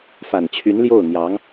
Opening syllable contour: low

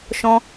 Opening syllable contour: high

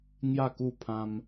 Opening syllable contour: falling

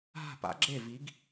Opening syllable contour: falling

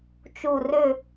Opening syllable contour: falling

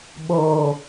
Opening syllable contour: low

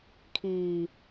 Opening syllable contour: low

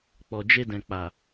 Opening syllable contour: low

